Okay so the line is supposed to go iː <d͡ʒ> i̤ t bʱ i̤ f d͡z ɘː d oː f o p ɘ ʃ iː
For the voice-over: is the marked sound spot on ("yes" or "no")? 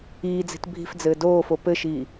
no